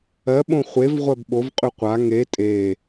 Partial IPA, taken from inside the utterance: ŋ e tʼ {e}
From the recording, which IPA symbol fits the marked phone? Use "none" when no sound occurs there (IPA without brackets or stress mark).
e